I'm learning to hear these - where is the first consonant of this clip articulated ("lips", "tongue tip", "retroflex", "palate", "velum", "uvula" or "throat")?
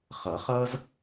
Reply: uvula